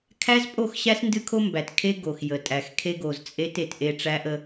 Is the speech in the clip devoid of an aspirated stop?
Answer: no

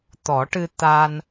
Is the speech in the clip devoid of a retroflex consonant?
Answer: no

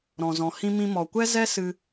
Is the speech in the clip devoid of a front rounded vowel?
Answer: yes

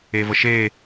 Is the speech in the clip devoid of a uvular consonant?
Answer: yes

